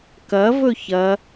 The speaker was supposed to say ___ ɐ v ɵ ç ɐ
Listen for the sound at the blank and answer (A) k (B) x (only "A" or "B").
A